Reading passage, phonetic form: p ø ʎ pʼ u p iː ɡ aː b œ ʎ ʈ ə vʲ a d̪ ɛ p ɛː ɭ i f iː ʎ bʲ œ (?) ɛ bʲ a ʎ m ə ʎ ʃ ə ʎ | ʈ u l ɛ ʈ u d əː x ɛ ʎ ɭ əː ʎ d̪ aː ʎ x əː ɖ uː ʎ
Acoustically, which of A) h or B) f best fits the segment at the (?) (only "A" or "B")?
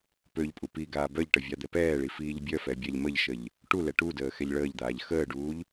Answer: B